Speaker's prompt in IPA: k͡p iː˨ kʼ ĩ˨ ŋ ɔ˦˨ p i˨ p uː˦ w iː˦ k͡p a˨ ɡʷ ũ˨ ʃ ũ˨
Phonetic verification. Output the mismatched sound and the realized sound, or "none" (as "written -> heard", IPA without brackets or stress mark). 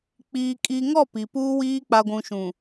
ĩ˨ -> i˨